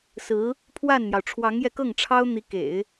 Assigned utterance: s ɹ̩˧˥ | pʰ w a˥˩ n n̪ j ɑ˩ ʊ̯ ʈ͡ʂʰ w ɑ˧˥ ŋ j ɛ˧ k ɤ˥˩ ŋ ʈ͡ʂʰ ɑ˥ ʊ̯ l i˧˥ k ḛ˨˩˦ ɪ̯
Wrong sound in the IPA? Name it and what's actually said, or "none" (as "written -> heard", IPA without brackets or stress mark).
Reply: l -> n̪